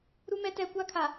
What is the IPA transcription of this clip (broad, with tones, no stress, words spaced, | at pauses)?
ɾu˦mɛ˦tɛ˦˨ kʷa˦kʰa˨